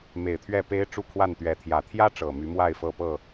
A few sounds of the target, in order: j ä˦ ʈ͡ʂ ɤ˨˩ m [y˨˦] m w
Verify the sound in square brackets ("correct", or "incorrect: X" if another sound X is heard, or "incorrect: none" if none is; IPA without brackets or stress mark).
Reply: correct